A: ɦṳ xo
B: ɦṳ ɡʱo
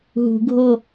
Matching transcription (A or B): B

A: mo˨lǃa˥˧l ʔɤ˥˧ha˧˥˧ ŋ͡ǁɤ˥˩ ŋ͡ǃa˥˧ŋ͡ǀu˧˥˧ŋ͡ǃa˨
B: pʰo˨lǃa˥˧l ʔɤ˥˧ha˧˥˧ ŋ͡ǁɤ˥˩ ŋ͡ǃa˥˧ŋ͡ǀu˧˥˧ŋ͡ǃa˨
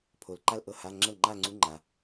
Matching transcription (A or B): B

